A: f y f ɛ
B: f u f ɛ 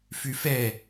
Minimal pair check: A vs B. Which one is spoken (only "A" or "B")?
A